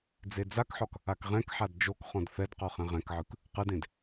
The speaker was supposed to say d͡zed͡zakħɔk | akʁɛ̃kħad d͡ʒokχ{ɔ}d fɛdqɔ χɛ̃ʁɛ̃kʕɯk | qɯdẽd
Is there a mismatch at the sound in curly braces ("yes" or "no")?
yes